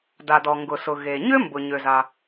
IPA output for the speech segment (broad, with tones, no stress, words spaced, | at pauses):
da˩dɔ˩ŋɡʊ˩sʊ˩ ɣe˩ɲʏ˥ mbʊ˩ɲø˩za˩